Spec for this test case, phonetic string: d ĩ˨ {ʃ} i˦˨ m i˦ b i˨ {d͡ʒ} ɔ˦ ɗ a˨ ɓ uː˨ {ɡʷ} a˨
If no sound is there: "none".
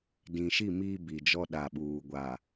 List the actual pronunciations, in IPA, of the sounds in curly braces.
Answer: ʃ, d͡ʒ, ɡʷ

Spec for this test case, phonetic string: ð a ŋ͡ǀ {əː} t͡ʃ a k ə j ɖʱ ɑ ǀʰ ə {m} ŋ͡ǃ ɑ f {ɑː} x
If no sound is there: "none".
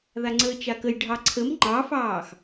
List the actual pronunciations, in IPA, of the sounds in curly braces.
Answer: əː, m, ɑː

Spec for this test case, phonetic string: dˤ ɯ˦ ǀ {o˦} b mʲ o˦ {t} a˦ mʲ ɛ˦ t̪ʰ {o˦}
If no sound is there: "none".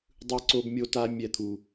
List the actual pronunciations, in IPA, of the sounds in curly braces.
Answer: o˦, t, u˦

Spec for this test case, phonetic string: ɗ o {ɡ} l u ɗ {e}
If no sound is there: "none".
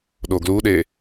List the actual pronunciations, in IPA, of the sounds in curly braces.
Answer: ɡ, e

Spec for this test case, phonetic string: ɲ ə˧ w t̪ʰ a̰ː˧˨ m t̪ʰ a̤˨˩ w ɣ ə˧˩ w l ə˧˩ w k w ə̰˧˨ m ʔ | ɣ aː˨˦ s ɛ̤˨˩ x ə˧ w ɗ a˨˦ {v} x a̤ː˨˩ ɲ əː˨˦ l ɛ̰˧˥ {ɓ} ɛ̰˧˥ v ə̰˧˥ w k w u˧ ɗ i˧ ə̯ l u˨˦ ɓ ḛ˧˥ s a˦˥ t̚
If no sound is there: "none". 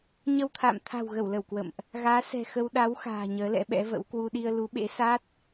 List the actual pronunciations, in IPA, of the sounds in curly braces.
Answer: w, ɓ

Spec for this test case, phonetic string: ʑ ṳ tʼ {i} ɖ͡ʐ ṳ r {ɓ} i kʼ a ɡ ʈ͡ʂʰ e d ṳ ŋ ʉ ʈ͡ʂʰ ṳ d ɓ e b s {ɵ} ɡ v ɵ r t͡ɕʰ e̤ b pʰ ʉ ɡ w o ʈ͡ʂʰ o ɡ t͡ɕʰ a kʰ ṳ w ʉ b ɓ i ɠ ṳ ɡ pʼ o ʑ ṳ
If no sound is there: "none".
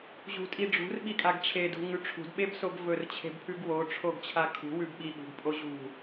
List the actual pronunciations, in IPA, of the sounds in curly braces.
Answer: i, ɓ, o

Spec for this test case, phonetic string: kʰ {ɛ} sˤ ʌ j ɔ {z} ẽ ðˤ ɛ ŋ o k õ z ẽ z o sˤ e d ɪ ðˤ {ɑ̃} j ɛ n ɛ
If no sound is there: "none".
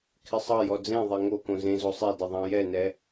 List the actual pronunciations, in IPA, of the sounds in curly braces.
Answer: ɪ, d͡z, ɑ̃

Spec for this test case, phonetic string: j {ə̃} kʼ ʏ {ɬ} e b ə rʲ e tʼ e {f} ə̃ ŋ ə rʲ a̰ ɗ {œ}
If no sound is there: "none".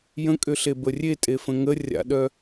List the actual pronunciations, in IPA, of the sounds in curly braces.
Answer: ə̃, ɬ, f, œ

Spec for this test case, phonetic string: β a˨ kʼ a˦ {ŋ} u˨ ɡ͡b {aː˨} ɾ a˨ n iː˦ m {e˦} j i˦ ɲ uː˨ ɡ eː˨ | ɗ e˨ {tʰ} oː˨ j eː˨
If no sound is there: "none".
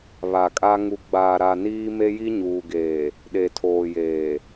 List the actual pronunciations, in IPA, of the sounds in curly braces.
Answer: ŋ, aː˨, e˦, tʰ

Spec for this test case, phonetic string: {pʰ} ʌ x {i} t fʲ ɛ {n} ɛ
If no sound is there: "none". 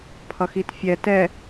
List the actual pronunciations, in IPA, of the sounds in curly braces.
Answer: pʰ, i, t

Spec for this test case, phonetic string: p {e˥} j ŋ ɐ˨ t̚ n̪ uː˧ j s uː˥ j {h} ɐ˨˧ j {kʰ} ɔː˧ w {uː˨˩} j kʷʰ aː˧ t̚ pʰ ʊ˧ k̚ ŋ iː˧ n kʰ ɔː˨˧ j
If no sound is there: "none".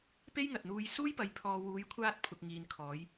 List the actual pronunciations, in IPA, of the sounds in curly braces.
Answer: e˥, p, pʰ, uː˨˧

